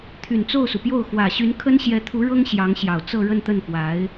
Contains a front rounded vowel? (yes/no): yes